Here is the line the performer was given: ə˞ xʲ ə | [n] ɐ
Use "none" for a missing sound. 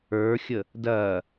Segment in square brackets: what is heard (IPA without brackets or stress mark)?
d